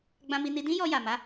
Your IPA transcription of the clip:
ɡ͡b ã˧ m i˧ n i˧ d ĩ˦ j ɔ˧ j a˨ m a˨˦

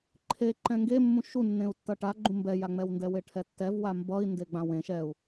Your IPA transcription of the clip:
ǃʰ e ǃ ɛ̃ ŋ ɡ e mː ũ ʃ u nː ẽ u̯ tː ʌ ʈ a ɡ͡ǃ ũ m b ɛ j a ŋ͡m ɛ w n d ɛ w e ʈʰ ɛ tː ɛ v w a m b ʌ i̯ n d e ɡ͡b ã w ẽ ʃ ɛ u̯

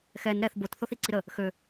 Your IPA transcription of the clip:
x ɛ n ɾ ɛ θ b o t θ o θ i ǀ i ɾ ə | x ø

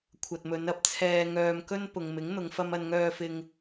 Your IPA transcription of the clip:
kʷʰ ɐ˨ t̚ m ɵ˨˧ n ɐ˨˥ p̚ t͡sʰ ɛː˧ ŋ œː˧ m k ɵ˥ n p ʊ˨ ŋ m ɪ˨˥ ŋ n̪ ʊ˨˧ ŋ f ɐ˥ m ɐ˧ n ŋ œː˧ f ɪ˧ ŋ

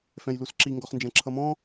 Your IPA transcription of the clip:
f ɛ̃ j l u s ǁ i ŋ ɡ ɔ χ n d͡ʒ ɛ̃ ǁʰ ʌ m ɔ̃

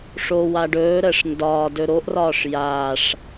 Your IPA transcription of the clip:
ʂ o w a ɖ ɵː ɾ əː ʂ n d ɒː d ɵ ɾ o ʔ r ɒː ʂ j aː ʂ

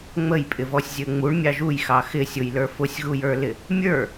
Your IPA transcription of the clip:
ŋ͡m ə j pʼ ɪ v ɔ sʲ zʲ ə ŋ͡m u ɳ mʲ ɑ ʒ u j x ɑ x ɪ sʲ ʊ j l ə˞ f ʊ sʲ ɣ u j ə˞ l ɪ | mʲ ə˞

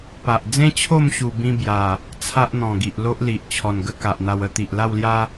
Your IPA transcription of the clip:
p a˨ ʔ d͡z ẽ˦ t͡ɕʰ o˥˧ m ɕ u˧ b ĩ˦ b j a˨˩ | t͡sʰ a˦ ʔ n̪ ɔ̃˨˩ ɡ i˨ ʔ l o˦ ʔ l i˨ ʔ t͡ɕʰ ɔ˨˩ n ɡ ə˦ k a˨ ʔ n̪ a˧ w ə˦ t̪ i˨ ʔ l a˥˧ w l j a˦

